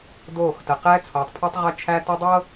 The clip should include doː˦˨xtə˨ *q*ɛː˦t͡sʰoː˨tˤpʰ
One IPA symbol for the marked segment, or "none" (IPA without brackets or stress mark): q